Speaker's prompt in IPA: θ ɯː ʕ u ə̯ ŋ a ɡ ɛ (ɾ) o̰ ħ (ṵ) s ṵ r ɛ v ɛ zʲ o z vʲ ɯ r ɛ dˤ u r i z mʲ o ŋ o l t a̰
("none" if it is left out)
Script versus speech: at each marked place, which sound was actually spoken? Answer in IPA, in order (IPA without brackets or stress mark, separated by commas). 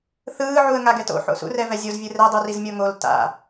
t, o̰